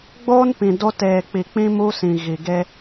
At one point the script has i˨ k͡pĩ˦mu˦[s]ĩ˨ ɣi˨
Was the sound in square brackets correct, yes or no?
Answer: yes